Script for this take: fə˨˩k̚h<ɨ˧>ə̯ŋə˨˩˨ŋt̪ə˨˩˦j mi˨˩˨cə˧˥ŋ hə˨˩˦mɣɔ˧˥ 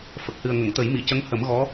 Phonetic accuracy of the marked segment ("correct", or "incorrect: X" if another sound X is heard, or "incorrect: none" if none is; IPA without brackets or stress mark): incorrect: ɨ˨˩